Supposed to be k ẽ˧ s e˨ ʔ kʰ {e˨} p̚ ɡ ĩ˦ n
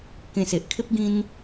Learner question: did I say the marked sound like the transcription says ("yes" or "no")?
no